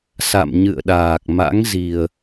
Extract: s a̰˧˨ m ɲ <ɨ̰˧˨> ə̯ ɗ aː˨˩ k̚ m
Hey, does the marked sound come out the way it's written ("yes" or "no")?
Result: yes